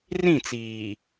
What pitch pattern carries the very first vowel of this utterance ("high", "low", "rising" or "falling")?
falling